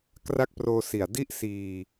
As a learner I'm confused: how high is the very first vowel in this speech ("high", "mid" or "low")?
low